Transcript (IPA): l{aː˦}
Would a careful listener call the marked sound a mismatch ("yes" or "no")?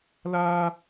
no